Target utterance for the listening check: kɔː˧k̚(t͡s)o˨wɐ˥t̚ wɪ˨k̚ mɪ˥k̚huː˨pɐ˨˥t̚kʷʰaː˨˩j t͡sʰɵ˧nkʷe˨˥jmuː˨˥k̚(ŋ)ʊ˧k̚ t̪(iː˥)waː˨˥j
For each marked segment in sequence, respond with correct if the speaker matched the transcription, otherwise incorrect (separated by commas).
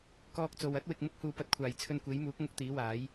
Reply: correct, correct, incorrect